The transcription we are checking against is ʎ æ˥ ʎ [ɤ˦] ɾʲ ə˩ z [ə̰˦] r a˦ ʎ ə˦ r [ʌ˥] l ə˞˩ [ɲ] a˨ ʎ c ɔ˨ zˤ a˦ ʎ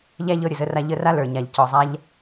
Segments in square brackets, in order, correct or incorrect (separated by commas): correct, incorrect, incorrect, correct